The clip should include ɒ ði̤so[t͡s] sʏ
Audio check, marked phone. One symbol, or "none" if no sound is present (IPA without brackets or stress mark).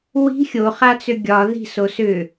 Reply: none